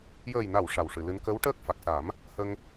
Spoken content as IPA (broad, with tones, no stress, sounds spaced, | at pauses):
j əː˨˩ j n a˨˩˨ w ʂ a˨˩ w ʂ ɨ˨˩˨ l ɨ˧˥ n k ə˧˥ w ʈ əː˦˥ k̚ f a˨˩ k̚ s a˨˩˦ m | h ə˧ ŋ